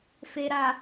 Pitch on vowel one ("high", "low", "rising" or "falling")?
low